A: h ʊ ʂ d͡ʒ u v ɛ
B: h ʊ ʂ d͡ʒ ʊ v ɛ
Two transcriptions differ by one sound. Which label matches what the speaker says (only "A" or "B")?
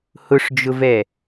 B